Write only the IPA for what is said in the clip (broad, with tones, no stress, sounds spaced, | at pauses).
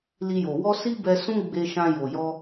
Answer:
l i˧ j o˨ w ɔ˧ s i˦ b ɛ˧ s ũ˦ ɡ͡b e˧ ʃ ã˧ j o˨ j ɔ˧